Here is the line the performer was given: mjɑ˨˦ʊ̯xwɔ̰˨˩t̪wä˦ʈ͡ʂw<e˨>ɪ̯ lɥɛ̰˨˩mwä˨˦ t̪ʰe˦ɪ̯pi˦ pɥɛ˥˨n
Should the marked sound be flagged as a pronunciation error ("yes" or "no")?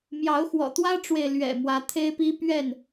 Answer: no